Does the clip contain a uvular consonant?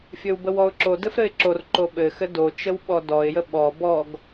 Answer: no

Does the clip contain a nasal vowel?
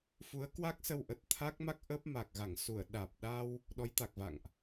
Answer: no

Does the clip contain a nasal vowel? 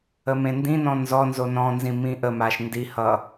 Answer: yes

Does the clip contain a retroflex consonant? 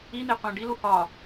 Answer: yes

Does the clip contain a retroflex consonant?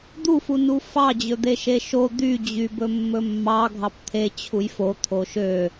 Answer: no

